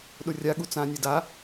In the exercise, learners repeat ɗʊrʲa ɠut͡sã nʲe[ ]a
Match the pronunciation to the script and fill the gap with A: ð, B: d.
B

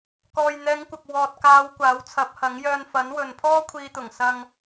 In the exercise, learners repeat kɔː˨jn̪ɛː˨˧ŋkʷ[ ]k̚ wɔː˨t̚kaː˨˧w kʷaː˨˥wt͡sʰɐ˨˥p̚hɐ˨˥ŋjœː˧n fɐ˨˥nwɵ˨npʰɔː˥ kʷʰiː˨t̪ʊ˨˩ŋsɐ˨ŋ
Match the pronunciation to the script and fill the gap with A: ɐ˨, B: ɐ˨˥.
A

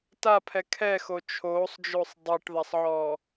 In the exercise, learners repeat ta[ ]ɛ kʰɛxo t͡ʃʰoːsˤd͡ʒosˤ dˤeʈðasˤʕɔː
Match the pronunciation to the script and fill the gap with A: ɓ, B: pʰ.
B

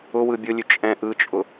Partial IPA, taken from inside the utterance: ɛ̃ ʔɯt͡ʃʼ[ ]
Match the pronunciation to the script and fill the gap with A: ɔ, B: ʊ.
B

